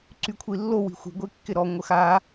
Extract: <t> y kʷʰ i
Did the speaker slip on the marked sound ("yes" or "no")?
yes